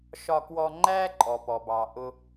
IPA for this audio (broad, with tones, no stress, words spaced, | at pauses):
ʃɒ˧kwɔ˧ ŋ͡ǃæː˥ ǃʼɔ˩pɔ˩bɑ˩ʔʊ˧